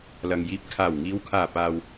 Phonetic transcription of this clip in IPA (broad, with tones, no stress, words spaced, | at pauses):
lɐ˨ŋ jiː˨˥p̚kʰaː˨˩wŋiː˨˧wkʰaː˨˩ paː˨w